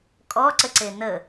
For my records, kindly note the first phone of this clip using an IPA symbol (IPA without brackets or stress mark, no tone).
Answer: kʼ